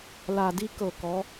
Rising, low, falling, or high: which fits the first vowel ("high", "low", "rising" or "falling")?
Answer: low